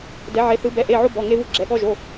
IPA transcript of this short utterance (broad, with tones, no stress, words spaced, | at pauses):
dɛ˧˥ʕe˧˥θɯ˧˥ bɛ˧˥˧ʔe˧˥˧ʕo˥ bɔ˧˥˧ŋe˥vɯ˥ɡ͡ǁɛ˧˥˧ ɠɔ˥ʒo˧˥˧